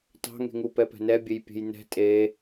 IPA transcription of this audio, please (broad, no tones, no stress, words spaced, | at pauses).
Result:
tɑ̤ŋe̤ŋu pɛpɛ̤nɛbʲej pʲe̤jnɛ̤ tʼe